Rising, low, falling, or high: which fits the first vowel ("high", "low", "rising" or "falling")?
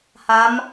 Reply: rising